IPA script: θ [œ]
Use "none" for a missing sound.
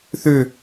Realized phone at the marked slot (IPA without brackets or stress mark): ø